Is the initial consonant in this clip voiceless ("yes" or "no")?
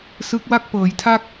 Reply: yes